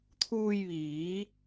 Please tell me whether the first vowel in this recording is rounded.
yes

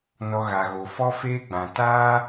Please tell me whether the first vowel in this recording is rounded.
yes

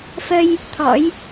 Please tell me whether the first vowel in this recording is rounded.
no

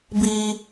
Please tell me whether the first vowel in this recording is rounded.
no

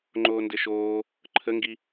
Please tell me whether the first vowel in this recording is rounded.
yes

